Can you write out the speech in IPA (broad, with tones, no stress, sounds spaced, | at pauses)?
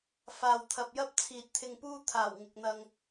f aː˨ w t̪ʰ ɐ˨ p̚ j ɐ˥ p̚ t͡sʰ iː˨ t̚ t̪ʰ ɪ˧ ŋ p uː˥ t̪ʰ aː˨˩ w ŋ ɪ˨ k̚ n̪ ɐ˧ ŋ